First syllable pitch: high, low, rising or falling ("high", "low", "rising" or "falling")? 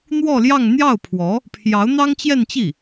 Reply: falling